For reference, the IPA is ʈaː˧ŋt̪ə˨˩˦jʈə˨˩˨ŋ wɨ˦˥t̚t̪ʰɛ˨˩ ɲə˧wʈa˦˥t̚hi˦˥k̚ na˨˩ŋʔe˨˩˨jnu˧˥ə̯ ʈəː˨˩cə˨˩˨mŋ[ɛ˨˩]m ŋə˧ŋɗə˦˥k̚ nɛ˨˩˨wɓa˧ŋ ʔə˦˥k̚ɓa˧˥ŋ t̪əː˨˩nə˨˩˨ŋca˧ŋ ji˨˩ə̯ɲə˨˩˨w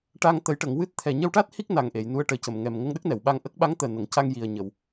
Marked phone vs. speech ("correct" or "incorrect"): correct